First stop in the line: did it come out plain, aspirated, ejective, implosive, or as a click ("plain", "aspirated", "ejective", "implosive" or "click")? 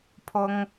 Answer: aspirated